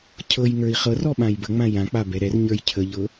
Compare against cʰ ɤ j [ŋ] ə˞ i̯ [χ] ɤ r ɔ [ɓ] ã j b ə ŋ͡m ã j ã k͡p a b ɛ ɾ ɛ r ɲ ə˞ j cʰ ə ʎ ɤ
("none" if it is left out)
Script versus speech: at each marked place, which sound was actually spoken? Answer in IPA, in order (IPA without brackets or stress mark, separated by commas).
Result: ŋ, χ, ɓ